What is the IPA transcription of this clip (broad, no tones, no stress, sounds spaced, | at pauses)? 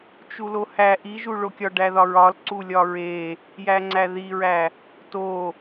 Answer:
t͡ʃ u l o h æ ʔ i ʒ u ɭ o kʲ ɒ ɖ æ ð ɒ ɹ ɒ l ǀ u lʲ ɒ ɹ e | j æ ŋ͡ǀ æ ð i ɹ æ | t o